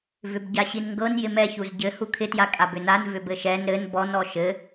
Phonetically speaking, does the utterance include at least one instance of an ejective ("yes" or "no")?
yes